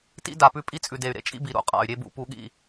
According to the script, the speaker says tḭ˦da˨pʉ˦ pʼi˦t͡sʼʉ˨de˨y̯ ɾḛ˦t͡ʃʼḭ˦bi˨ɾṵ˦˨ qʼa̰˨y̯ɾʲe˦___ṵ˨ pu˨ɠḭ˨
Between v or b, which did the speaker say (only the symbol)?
b